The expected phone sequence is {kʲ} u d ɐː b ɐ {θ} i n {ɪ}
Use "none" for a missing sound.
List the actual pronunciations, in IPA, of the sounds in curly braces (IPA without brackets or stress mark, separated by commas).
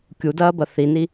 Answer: kʲ, θ, i